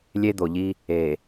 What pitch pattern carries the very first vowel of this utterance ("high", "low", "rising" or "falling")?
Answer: high